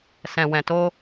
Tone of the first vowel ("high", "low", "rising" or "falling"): low